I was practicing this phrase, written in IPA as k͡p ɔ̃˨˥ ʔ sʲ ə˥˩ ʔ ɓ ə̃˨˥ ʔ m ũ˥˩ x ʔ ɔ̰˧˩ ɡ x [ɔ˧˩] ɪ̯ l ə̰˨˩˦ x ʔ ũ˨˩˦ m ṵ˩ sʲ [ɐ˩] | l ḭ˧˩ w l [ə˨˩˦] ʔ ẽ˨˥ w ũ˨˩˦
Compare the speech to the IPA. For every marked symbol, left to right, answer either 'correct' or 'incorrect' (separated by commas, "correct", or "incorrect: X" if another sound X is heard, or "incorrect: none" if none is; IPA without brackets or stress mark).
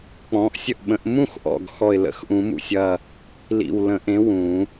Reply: correct, incorrect: ɐ˧˩, incorrect: ə̃˨˩˦